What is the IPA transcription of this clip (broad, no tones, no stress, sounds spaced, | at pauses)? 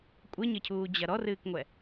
kʷʼ ɘ ɲ ɘ cʰ uː d͡ʑ ɐ ɾ ɔ r ɨː k ŋʷ ɛ